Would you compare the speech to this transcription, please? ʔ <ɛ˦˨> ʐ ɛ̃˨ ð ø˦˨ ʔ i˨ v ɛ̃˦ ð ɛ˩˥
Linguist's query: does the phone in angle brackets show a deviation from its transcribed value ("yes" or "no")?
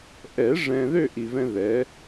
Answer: yes